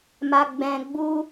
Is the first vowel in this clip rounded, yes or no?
no